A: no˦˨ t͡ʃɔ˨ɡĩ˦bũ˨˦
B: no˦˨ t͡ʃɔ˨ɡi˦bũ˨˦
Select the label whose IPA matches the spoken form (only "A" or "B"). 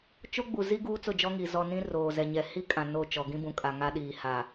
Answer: A